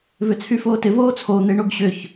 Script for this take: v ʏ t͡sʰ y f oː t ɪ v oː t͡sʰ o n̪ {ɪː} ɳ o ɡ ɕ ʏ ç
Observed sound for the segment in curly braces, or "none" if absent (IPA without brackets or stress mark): ɪː